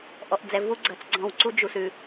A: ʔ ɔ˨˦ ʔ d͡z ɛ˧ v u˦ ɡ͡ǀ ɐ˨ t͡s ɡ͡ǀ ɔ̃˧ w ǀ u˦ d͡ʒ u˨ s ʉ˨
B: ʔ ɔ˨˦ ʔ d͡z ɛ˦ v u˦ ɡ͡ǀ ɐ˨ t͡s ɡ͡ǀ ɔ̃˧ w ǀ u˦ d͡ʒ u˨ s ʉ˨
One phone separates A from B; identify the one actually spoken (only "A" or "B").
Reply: A